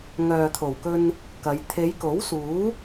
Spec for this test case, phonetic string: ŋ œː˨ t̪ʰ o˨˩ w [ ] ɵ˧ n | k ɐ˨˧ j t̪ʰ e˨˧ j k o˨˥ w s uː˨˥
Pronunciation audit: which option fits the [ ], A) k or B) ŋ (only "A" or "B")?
A